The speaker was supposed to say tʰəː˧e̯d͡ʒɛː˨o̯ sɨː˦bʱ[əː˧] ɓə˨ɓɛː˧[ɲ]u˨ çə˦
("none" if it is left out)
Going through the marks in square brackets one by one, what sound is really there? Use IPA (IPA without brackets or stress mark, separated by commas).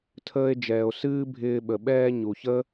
ɪː˧, ɲ